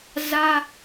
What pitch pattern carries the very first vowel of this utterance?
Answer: high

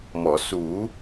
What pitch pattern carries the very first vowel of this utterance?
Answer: low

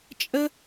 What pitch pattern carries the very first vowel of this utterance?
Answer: high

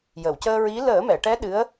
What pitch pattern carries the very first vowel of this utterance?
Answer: low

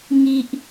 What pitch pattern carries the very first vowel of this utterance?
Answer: low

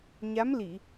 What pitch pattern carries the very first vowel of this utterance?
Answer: rising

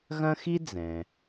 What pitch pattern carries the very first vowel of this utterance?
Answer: high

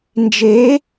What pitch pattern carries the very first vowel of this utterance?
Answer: rising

